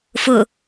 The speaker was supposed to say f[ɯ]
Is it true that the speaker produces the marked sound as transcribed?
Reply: no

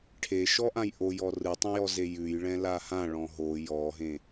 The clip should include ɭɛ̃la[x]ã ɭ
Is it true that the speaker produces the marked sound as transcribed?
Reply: no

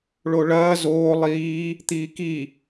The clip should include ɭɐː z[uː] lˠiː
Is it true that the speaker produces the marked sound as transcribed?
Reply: no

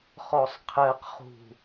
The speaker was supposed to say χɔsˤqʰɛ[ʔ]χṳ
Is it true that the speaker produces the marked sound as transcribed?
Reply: no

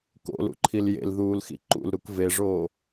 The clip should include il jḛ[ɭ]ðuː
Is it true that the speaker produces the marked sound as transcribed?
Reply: no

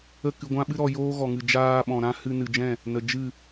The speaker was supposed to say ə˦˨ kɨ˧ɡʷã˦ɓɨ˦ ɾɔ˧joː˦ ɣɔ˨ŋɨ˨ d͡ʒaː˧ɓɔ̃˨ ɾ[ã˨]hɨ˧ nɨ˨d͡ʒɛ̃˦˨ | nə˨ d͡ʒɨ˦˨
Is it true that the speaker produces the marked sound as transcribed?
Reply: no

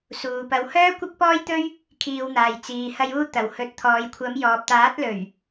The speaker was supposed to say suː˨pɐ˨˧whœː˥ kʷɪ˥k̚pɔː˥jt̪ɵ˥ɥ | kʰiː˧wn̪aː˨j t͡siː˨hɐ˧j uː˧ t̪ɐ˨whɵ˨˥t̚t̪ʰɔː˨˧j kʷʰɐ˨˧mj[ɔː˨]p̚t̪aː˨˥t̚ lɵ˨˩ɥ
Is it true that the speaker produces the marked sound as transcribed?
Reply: yes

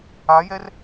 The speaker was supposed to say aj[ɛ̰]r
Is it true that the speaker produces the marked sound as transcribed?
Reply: no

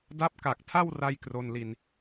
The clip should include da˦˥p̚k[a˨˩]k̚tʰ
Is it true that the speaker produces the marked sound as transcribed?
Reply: yes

